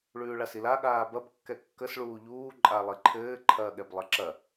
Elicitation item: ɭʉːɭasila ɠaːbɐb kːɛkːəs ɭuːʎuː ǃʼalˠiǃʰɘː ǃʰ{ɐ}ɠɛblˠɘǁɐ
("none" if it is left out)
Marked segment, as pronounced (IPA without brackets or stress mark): ɐː